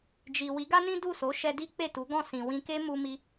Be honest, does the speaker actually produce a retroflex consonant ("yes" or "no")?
no